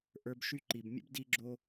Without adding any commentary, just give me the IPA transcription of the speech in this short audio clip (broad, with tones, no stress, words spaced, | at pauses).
ʔə˞˧bʃy˧ǃi˨bmʲə̰˦b di˦ɡ͡ǁo˦